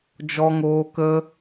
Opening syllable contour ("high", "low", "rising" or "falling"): high